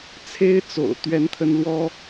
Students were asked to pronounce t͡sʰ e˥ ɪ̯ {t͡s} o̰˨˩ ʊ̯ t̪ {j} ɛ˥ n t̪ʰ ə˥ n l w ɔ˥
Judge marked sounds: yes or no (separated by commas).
yes, no